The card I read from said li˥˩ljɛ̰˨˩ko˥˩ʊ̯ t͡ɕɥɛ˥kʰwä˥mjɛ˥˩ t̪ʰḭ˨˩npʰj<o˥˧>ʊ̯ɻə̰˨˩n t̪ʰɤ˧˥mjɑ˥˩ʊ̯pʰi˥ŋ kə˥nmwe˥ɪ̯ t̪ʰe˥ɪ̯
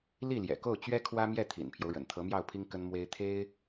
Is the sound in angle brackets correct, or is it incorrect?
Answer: incorrect